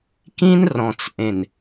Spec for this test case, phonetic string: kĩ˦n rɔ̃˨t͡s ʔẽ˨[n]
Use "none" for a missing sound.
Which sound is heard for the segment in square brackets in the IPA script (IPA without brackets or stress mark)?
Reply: n